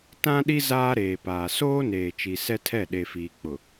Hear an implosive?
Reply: yes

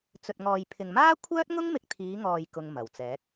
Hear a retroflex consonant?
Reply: no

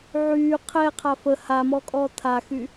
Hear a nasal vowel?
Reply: no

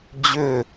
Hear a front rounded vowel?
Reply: yes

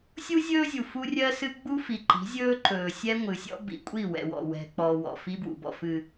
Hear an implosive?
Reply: no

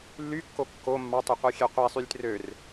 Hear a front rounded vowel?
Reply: yes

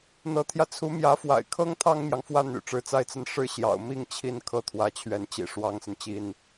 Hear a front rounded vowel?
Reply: yes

